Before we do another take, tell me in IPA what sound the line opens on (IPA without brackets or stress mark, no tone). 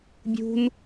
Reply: bʲ